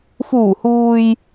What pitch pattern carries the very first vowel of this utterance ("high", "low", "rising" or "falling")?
low